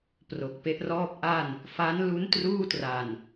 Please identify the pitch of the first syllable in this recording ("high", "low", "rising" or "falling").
low